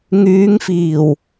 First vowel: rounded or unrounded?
rounded